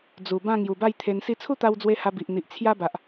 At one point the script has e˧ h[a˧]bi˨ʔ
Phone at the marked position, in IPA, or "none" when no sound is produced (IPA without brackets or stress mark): a˧